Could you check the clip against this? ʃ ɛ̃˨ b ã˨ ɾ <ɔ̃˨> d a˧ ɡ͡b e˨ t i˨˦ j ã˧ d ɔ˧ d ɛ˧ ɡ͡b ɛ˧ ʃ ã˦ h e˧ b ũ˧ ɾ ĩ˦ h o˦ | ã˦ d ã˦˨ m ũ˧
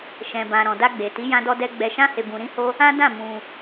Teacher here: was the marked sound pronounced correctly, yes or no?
yes